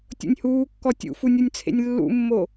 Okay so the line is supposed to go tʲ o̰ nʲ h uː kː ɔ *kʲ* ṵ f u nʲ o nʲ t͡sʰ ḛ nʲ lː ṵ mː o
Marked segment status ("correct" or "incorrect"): incorrect